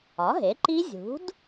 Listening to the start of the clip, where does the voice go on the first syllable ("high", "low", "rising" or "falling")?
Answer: rising